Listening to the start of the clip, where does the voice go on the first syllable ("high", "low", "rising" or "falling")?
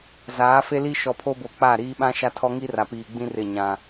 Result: rising